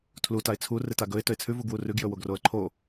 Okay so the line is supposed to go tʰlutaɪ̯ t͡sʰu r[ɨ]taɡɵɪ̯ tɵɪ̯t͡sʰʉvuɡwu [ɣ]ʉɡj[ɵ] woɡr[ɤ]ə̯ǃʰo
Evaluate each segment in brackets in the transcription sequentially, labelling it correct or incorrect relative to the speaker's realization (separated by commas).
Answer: correct, incorrect, correct, incorrect